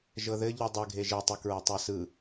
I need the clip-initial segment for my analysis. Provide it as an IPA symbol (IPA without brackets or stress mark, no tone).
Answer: ʒ